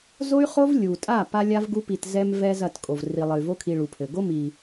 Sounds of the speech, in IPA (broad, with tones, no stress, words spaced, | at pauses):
zo˦y̯χo˦v lʲu˨tʼa˦˨ pa˦lʲa˦vɡu˦ pi˨tzɛ˧mvɛ˧ zɐ˦˨tkʼo˨v ri˨lˠɘ˨y̯vo˦ kʰi˧ɭu˨pʰɘ˨ ɡo˦mi˨